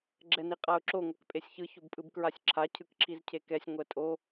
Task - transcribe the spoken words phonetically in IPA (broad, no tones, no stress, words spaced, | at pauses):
ɡ͡ǁɛniqʼaʊ̯ǁo ŋʷakpʼesʲçɯ çobpʼɯbkɹasʲǁʰa cʰɯkǁʰizcʰekɛsʲ ŋʷɛtʼo